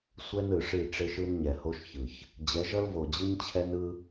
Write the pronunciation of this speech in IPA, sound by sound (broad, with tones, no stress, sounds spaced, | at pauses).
sʷ ɛ˦ n ɯ˨ ʂ i˦˨ ʈ͡ʂ e˦ ʃ ɯ˦ n ɲ ɛ˨ h o˦ ʃ ç ɯ˨ ç | d͡ʑ ɛ˨˦ ʒ ʌ˦ l v o˨ d͡ʑ ɯ˦ ɲ t͡ɕʰ ɛ˦ n ɯ˦